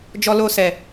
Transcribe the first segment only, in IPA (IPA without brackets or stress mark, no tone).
d͡ʒ